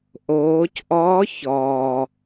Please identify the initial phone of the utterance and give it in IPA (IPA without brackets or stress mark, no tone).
ʔ